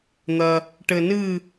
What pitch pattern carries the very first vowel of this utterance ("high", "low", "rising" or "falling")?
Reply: low